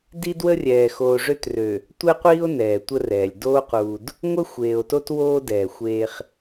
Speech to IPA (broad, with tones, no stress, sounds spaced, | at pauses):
d i˦ d w ə˦ rʲ ɛː˨ x oː˨ ʐ ø˦ t r ø˨ | tʷ ɛ˦ qʷ iː˦ o̯ n ɛː˨ tʷ ə˦ r ɛː˨ lʲ d oː˦ q uː˨ d | ŋʷ ə˦ xʷ eː˨ o̯ t o˦ t w oː˦ d ɛː˨ xʷ eː˦ χ